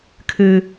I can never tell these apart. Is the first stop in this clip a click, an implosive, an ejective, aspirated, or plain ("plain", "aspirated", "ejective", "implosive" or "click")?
aspirated